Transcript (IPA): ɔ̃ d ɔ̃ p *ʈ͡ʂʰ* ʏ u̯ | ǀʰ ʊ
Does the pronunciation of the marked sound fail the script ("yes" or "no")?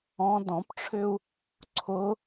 no